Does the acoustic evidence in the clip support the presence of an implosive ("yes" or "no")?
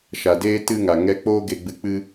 no